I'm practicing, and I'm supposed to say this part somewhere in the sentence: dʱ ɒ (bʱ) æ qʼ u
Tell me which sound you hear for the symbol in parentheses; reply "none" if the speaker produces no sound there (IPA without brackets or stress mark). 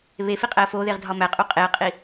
m